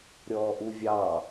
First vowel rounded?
yes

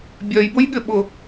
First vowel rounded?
yes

